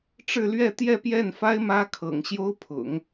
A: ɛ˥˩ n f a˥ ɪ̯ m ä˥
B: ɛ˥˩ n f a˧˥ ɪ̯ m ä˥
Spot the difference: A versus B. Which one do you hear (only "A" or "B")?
A